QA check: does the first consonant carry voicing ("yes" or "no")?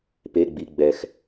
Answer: no